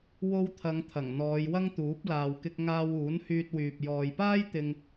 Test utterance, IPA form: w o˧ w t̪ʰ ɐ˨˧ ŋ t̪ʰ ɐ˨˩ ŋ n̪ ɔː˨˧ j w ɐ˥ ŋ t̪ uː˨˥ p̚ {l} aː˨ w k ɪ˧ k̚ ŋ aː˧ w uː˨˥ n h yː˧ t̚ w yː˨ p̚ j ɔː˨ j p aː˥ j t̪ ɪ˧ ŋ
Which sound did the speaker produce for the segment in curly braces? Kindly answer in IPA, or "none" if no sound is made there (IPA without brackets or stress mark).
l